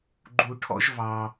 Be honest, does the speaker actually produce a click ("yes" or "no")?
yes